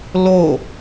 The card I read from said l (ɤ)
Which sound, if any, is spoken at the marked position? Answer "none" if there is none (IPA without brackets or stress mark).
o